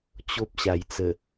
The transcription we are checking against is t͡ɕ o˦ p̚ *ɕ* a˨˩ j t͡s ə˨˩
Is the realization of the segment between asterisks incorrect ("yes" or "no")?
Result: no